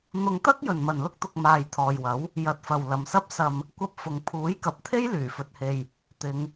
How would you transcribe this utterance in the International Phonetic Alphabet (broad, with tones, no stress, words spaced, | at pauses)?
n̪ʊ˧ŋt̪ɐ˥k̚ jɵ˨nmɐ˨nlʊ˥k̚t̪ʊ˧k̚ maː˧j t̪ʰɔː˨jwɐ˨˥w | jɐ˨˥t̚fɐ˨w lɐ˨msɐ˥p̚sɐ˧m | kʷɐ˧p̚fʊ˨ŋ pʰuː˨˥jkɐ˨p̚t̪ʰe˥j lyː˨˩fɵ˨t̚he˨j | t̪ɪ˨˧ŋ